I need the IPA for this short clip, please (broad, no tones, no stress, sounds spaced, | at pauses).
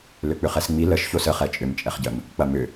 l ʏ k͡p ʏ χ ɛ s ŋ͡m i l ə ʃ ç o s ə χ ɛ t͡ʃʼ ʏ m t͡ʃʼ ɛ χ ɟ ə m | k͡p ɐ m ʏ